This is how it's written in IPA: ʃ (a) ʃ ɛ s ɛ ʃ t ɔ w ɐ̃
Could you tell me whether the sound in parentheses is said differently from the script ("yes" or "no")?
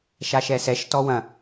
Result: no